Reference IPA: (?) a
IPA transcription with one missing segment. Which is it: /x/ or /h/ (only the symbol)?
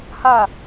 h